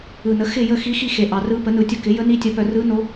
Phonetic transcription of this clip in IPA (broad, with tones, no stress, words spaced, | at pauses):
ɯ˨nə˩˥ xɪ˦˨jə˦˨xi˧˥xi˦˨ xe˨ʔɑ˨rɯ˧˥ pə˩˥nɯ˨tʲə˦˨kɪ˩˥ jə˧˥ni˧˥tʲə˩˥pœ˨ rɯ˧˥no˧˥